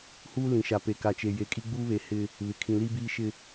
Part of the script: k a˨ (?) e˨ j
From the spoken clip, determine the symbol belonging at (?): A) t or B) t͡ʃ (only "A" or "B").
B